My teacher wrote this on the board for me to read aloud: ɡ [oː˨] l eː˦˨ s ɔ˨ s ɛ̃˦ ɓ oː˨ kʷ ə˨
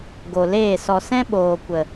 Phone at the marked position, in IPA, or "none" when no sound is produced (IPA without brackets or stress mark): o˨